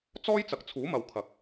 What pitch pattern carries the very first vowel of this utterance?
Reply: high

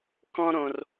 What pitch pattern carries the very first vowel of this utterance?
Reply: high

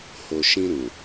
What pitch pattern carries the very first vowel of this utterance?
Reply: low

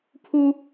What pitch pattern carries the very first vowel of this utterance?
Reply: high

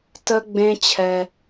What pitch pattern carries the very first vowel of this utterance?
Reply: high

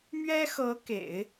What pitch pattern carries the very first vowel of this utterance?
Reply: high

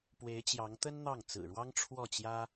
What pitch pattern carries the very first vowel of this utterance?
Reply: rising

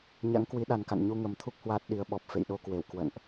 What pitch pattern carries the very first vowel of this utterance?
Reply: rising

